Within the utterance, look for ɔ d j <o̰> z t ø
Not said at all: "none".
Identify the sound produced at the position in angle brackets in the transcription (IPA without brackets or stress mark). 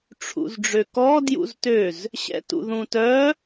ṵ